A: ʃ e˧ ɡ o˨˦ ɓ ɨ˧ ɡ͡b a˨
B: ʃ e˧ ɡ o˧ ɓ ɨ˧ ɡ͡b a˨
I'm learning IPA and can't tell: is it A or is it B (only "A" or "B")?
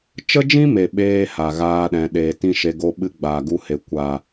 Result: B